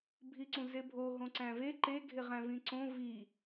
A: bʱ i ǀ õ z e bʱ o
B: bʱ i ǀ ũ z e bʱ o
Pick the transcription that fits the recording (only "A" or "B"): B